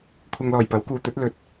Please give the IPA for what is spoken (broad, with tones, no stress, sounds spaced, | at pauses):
kʷʰ ɐ˧ ŋ l ɔː˨˩ j p ɐ˨˥ w k uː˨˧ t̪ ɵ˨˥ t̚ l ɵ˧ t̚